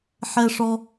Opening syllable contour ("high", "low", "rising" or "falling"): high